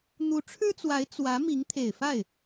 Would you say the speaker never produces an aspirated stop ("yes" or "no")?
no